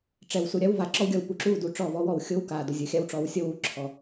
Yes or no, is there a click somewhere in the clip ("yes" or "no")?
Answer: yes